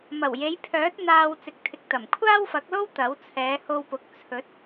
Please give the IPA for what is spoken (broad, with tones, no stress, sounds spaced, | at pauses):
m ɐ˨˩ w j e˨˧ j pʰ œː˨˥ t̚ n̪ aː˧ w t͡s ɪ˨ k̚ t̪ʰ ɪ˨ k̚ t̪ ɐ˨˩ m kʷʰ aː˥ w f ɐ˨˥ k̚ l o˥ w t̪ ɐ˨˥ w t͡sʰ ɛː˨˧ h o˧ w p ʊ˨ k̚ t͡sʰ ɵ˨˥ t̚